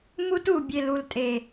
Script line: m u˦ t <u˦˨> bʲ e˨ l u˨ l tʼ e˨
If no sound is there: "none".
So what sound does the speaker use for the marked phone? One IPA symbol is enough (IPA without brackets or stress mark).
u˦˨